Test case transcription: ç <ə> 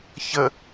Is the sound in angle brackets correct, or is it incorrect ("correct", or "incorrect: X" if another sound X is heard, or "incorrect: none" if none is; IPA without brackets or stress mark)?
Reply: correct